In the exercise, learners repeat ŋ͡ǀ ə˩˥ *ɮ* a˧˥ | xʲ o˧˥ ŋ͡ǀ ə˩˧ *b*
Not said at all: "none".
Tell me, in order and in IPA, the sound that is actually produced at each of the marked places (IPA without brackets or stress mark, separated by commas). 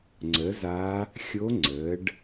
z, ɖ